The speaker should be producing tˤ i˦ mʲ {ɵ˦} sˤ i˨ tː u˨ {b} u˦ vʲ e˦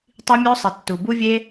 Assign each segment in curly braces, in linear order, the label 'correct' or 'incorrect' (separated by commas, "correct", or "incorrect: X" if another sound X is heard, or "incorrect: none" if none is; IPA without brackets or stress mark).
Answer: incorrect: o˦, correct